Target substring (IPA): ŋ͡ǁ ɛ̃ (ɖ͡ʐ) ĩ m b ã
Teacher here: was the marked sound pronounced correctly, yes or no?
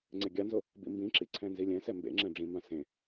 yes